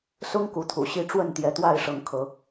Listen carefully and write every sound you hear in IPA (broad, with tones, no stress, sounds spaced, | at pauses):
s ʊ˦ ŋ k u˨˦ t̪ʰ ṵ˨˩ ɕ i˦ ʈ͡ʂ w ə˥˨ n t̪ j ɛ˨˦ t̪ w a˥˨ ɪ̯ ʂ ɤ˨˦ ŋ kʰ ɤ˨˦